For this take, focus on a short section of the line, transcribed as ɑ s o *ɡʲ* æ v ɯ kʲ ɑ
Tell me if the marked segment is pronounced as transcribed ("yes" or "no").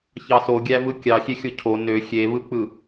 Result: yes